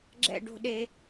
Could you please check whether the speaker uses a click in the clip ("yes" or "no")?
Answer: yes